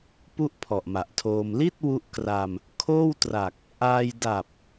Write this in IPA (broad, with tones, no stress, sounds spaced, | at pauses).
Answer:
p u˥˩ ʔ pʰ ɔ˨˩ ʔ m a˨˩ ʔ tʰ oː˧ m l i˥˩ t̚ w u˦˥ ʔ k r a˧ m | kʰ oː˥˩ w t r a˨˩ k̚ | ʔ aː˧ j d a˨˩ p̚